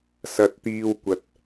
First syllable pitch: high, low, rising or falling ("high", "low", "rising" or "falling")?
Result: low